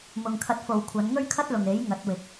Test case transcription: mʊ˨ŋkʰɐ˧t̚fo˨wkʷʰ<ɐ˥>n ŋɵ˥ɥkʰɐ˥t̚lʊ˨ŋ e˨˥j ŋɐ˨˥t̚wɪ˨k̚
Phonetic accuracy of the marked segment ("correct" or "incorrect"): incorrect